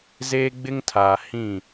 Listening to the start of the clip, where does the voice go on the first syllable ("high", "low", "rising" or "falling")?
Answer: high